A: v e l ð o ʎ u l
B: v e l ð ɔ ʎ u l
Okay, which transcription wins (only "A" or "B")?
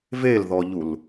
B